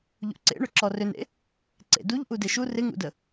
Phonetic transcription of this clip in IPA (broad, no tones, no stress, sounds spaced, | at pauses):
ʎ ṵ ǀ ḛ ɳ ʏ ǁ ɔ r ʏ n ḛ | ǀ ḛ d u ʎ ʔ u d e ʃ u r ɪ ŋ ṵ d ə